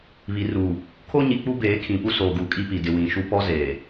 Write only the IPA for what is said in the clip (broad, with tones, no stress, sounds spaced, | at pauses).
β i˨ r uː˨ | kʰ o˦ ɲ i˨ k͡p u˦ b eː˨˦ kʰ ĩ˨ p u˦ s oː˨ ɡ u˨ kʼ i˦ p i˨ d ɪ˨ w ĩ˨ ʃ u˦ p ɔ˦ z eː˨